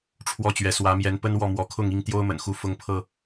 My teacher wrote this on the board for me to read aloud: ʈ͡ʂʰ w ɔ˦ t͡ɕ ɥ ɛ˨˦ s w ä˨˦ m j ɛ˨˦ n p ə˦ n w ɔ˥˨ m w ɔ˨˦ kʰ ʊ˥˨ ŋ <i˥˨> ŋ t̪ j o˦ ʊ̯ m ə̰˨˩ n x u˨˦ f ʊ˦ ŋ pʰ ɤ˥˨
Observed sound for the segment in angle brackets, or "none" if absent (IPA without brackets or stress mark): i˥˨